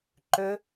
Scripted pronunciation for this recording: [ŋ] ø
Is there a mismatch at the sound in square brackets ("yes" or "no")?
yes